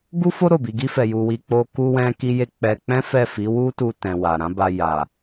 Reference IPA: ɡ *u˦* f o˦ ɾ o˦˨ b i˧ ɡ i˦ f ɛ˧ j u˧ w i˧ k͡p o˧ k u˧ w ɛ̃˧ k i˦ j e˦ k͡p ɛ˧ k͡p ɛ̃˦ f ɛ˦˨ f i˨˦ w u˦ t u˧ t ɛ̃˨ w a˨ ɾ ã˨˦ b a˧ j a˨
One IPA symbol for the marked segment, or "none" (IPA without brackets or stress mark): u˦